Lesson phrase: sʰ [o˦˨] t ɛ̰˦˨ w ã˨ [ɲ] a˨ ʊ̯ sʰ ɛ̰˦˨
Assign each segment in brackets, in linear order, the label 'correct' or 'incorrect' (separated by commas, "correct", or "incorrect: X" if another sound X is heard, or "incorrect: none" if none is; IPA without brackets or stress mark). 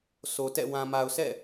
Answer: incorrect: o˨, incorrect: m